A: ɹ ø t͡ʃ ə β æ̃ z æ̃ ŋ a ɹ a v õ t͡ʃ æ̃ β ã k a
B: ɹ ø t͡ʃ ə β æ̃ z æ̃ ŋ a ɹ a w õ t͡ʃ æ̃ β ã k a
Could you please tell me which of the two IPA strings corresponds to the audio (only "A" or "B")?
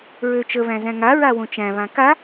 B